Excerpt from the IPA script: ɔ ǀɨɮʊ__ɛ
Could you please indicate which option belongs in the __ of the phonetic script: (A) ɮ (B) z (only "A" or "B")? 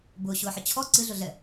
A